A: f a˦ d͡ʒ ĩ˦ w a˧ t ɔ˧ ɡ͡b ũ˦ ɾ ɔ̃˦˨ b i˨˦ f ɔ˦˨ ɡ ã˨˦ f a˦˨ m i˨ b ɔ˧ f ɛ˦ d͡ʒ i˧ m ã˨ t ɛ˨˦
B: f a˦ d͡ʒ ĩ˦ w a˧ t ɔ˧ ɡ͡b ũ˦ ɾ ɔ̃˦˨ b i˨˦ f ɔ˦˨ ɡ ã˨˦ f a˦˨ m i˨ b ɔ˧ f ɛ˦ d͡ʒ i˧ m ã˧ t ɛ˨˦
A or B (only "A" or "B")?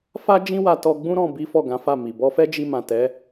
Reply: A